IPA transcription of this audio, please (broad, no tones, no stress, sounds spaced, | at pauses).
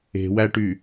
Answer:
e̤ w æ ʈ y